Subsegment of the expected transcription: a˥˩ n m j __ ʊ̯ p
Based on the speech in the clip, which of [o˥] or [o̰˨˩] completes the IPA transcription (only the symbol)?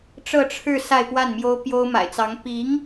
o˥